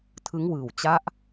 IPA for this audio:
tʰ ɯ˦˥ ŋ w ɯː˨˩ w t͡ɕ a˦˥ ʔ

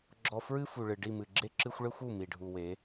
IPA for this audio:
ɡ͡ǁ ɔ˧ f ɹ ɨ˦ f u˨ ɭ ɨ˨ ɖ i˦˨ m ɨ˨ ɡ͡ǁ e˦ ǁ ɨ˦ xʷ ɭ ɘ˦ xʷ u˦˨ m i˨ ɖʱ u˨ w e˨˦

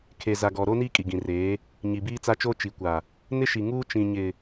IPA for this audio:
kʰ e˨ z a˨ ɡ ɔ˨ ɾ oː˦ n iː˦ kʼ i˨ ɡ ĩ˨ r eː˨˦ | ɲ i˨ b iː˦ t͡s a˦ t͡ʃ oː˦ t͡ʃ i˨ kʷ a˨ | n ɪ˦ ʃ i˨ ŋ uː˦ t͡ʃ ĩ˨ ɲ ɪ˨

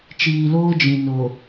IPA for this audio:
t͡ʃ iː˨ l oː˦ d͡ʒ ĩ˨ n o˨

